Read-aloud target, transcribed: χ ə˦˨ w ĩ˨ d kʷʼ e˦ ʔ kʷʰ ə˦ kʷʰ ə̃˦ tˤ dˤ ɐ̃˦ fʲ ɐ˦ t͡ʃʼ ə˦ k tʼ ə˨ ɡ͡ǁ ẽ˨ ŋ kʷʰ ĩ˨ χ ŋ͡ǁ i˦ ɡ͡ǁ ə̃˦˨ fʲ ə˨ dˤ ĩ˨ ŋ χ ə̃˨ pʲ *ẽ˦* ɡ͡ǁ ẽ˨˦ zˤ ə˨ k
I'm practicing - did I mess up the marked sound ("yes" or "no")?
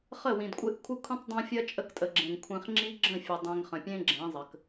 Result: no